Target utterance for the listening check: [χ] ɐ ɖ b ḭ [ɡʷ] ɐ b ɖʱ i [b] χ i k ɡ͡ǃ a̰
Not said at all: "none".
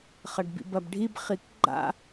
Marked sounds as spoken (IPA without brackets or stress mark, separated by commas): χ, b, b